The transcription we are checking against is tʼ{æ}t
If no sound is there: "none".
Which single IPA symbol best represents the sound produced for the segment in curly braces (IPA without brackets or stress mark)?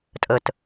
ə